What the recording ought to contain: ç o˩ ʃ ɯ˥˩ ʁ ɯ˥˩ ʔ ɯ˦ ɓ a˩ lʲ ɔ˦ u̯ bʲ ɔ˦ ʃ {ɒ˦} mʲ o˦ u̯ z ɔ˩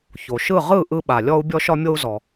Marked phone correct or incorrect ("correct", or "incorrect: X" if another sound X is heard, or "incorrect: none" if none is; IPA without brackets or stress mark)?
correct